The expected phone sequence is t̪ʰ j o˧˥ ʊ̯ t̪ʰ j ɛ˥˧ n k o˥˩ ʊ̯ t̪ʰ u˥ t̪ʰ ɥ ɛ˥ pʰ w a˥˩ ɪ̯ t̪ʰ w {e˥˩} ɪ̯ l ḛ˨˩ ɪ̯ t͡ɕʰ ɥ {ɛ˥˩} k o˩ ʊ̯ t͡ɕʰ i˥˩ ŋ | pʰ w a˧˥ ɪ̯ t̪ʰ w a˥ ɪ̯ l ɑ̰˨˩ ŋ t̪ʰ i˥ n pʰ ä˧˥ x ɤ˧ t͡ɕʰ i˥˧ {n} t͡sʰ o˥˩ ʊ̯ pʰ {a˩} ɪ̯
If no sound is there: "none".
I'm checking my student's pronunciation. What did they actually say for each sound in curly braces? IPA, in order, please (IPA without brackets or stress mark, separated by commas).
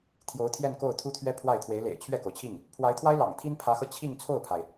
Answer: e˧˥, ɛ˥˩, ŋ, a˩